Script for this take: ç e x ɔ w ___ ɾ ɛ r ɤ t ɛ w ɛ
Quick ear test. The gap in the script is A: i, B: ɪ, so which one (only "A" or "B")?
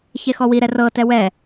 A